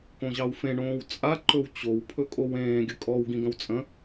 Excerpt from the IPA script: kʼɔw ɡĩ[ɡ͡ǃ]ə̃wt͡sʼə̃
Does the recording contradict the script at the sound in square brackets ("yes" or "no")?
yes